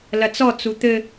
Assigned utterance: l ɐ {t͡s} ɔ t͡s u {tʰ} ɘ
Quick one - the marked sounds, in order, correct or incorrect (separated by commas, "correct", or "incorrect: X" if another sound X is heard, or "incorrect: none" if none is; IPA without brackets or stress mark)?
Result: correct, incorrect: t̪